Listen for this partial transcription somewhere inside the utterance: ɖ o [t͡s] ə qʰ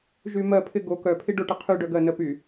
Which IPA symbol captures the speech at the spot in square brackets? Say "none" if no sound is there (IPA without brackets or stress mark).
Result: ʈ